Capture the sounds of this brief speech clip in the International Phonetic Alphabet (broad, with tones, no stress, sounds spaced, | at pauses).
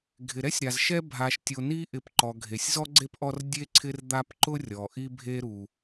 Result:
ɡʱ ɪ˩ ɾ ɛ˥ sʲ ɾ a˩ z ʃ ɛ˦ bʱ a˨ ʃ tʲ o˨ n i˥ ʔ ɪ˨ p ǃ ɔ˩ ɡʱ e˩ sʲ z ɔ˥ ɡ͡ǀ e˥ p ʔ ɔ˦ r dʲ e˥ ǀʰ ɪ˦ r d̪ a˦ p ǃ ʊ˥ rʲ ɔ˩ ʔ i˥ bʱ e˥ ɾ u˩